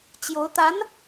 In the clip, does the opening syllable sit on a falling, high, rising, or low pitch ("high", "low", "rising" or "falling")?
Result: rising